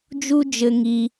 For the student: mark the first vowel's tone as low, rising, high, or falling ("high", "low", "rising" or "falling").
high